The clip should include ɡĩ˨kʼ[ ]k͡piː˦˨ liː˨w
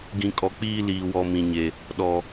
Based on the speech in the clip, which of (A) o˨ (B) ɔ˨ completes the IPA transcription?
B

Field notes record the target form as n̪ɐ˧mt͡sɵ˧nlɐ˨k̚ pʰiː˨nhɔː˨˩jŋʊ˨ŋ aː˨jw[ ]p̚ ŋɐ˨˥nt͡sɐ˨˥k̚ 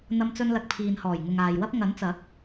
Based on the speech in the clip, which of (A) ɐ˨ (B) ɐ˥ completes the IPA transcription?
B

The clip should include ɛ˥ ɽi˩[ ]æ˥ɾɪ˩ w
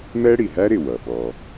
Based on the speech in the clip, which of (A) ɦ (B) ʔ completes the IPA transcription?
A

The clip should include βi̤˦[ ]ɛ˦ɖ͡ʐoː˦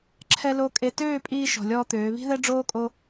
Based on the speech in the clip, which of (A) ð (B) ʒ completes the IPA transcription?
A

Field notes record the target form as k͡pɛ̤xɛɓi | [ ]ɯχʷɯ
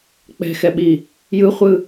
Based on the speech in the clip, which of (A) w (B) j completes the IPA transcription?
B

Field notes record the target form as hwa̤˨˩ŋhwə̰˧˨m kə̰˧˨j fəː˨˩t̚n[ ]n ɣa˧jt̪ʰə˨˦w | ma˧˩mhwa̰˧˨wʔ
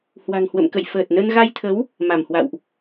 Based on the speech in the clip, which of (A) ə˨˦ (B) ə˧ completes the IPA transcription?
B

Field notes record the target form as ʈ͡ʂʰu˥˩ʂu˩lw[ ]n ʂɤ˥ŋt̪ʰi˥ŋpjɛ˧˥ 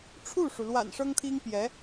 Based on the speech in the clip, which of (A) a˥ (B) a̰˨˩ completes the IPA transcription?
B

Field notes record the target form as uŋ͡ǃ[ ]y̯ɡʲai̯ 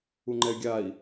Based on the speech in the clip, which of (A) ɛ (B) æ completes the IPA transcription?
A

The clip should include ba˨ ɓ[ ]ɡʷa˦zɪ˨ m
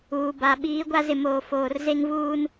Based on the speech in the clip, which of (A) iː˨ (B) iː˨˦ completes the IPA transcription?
B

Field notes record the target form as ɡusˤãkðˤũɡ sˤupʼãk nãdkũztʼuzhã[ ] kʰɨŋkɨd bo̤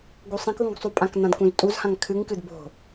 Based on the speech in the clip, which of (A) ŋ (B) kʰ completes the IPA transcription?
A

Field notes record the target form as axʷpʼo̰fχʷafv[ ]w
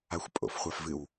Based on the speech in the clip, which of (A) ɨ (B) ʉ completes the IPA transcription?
A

